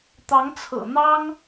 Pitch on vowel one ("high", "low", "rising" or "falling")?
rising